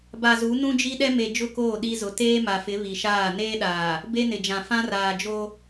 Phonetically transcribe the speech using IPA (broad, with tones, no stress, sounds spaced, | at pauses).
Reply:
b a˨ z u˨˦ n ũ˦ d͡ʒ i˦ ɗ ɛ˦ m e˨ d͡ʒ ʊ˦˨ k oː˦˨ ɗ i˦ z ʊ˨ t eː˦ m a˨ f ɪ˨˦ β i˨ ʃ aː˦˨ n eː˦ ɗ aː˨ | b e˦ n ɪ˨ d͡ʒ ã˨ f ã˦ r aː˨ d͡ʒ o˦